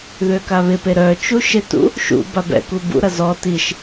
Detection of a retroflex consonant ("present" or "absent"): absent